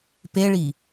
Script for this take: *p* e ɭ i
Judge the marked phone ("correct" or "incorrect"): correct